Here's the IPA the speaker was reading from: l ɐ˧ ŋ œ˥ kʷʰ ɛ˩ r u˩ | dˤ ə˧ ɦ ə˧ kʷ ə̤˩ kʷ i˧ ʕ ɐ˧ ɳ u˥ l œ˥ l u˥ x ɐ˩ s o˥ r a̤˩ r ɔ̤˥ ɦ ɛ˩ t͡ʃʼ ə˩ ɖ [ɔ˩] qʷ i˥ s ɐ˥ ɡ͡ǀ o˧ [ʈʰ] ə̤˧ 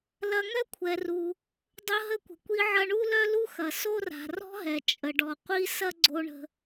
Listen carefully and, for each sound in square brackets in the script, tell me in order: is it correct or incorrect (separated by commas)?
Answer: correct, incorrect